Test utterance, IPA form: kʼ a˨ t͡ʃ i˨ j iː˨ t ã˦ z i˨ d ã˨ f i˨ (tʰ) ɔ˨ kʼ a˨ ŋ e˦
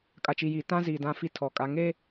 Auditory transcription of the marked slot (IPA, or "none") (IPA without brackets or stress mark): tʰ